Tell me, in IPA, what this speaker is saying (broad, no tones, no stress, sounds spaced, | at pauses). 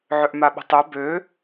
ʕ ø ʔ m a ɓ ə̤ tˤ ø b ø